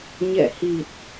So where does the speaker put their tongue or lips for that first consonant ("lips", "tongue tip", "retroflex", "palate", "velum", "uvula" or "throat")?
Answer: palate